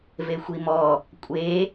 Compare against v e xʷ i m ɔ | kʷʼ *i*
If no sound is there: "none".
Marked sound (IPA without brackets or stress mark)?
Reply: e